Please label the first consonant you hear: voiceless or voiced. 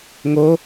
voiced